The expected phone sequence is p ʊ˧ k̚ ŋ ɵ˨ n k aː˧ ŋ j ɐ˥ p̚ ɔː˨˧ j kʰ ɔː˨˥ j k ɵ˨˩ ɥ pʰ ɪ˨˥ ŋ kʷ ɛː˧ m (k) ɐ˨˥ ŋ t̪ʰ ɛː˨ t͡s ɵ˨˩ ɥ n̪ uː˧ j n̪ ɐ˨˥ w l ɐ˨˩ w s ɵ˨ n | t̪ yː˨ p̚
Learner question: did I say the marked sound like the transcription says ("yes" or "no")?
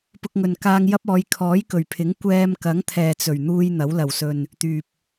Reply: yes